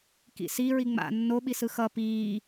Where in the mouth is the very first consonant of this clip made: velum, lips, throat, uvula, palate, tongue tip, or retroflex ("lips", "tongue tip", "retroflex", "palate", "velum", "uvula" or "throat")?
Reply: velum